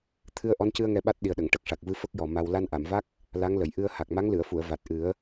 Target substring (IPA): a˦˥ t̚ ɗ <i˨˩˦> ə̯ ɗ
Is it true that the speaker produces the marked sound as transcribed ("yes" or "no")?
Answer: no